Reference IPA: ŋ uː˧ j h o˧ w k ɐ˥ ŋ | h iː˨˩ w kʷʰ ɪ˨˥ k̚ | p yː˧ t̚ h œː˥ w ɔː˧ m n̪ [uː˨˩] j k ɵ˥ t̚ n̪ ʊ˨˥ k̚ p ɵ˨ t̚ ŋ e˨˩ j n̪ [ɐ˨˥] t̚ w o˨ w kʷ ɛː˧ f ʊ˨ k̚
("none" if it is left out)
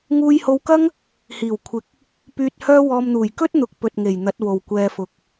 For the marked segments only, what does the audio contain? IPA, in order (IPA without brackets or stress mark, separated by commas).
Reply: uː˨˩, ɐ˨˥